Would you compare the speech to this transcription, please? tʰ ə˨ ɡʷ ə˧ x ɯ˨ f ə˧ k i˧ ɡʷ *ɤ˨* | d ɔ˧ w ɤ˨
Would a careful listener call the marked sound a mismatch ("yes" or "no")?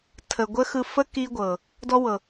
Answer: no